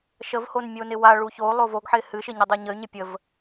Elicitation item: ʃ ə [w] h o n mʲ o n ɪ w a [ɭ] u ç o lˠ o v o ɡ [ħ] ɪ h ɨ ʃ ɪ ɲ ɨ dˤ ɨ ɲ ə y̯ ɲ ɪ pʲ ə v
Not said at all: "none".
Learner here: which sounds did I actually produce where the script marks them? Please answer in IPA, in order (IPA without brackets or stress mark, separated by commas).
v, ɭ, ħ